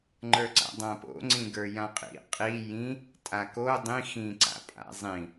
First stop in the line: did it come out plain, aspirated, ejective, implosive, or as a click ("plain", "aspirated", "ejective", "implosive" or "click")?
click